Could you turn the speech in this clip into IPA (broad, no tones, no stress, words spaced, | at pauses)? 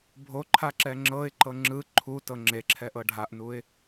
bʱoǃʰa ǁɛŋ͡ǁɤɪ̯ǃɤ ŋ͡ǁɯ ǃʰu tɤŋ͡ǁeǁʰɛ ʔɤɖʱaʔnuɪ̯